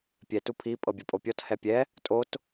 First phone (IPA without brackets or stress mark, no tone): pʲ